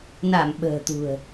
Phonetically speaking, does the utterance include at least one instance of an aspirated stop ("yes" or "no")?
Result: no